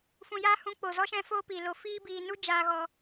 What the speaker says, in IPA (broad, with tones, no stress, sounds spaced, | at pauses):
f ũ˨ j a˧ h ũ˨˦ k͡p o˨ z ɔ˦ ʃ ɛ̃˦ f oː˦ p iː˨ l o˧ f iː˦ b iː˧ n u˦ d͡ʒ aː˧ ɣ ɔ˧